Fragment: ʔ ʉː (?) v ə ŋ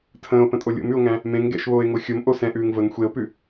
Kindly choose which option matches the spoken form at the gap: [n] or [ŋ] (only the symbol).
ŋ